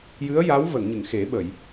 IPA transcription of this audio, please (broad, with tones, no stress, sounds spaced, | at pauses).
j ɨ˧˥ ə̯ j a˧˥ w v ə˨˩˨ ŋ ɲ ɨ˨˩˨ ŋ x e˨˩˦ ɓ ə˨˩˨ j